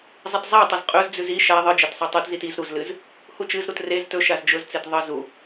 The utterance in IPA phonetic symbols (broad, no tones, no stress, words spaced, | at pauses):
zˤitzˤatˤɐz qʼɵzd͡zʉz i ʃa ðˤɨd͡ʒɐt sˤɵtˤʉtzit iz ɾuzlɨz | hut͡ʃɨzɾut rez tɵ ʃazd͡ʒɵzt͡set ðˤɨ zu